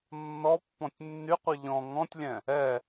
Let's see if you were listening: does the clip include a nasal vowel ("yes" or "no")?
yes